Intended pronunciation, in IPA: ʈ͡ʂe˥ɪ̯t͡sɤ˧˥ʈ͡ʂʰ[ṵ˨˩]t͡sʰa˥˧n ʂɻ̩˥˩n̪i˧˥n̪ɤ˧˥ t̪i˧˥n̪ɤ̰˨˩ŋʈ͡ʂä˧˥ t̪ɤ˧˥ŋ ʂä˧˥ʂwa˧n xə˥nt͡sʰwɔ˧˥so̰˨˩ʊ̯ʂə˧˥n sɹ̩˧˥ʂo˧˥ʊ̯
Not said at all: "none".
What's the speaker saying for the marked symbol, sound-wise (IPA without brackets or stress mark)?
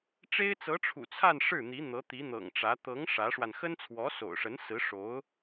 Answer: ṵ˨˩